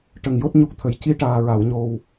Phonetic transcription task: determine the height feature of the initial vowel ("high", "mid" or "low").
mid